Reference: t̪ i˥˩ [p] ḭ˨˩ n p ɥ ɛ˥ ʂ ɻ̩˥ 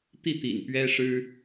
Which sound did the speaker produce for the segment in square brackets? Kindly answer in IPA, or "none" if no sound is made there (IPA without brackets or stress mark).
t̪